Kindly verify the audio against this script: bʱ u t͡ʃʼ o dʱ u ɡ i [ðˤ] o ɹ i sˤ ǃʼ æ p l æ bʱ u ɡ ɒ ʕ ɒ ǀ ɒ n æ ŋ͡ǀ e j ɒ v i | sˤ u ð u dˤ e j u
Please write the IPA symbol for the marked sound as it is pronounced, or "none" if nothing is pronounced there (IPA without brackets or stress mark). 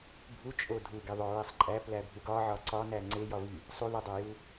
ðˤ